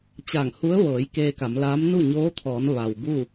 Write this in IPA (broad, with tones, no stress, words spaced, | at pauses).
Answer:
t͡ɕaː˧˩ŋhu˧˥ə̯ʋɤː˩˧j keː˧ka˩˧mlaː˧˥m nu˥˨ɲoː˧˥t̪ʰɔː˩˧n ʋa˩wbu˥˨